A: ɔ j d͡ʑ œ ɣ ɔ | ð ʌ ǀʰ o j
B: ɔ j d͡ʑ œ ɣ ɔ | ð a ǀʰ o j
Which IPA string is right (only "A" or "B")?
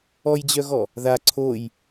B